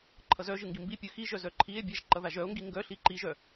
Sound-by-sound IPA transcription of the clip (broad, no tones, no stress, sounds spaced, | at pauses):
ǃʰ ʌ z œ ʒ ɯ ŋ ɡ i m b i pʲ ɯ x i ʒ œ z œ ǃʰ i e̯ bʲ ɛ ʒ ǃ ʌ ð a ʒ œ o̯ ŋ ɡ i ŋ ɡ œ ɬ i ǃ i ʒ œ